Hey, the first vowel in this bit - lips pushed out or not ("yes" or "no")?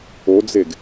yes